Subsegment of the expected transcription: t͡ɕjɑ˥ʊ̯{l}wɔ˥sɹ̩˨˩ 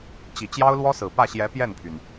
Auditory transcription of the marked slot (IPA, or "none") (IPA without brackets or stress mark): l